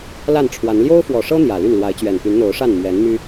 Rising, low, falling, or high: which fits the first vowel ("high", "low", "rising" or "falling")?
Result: falling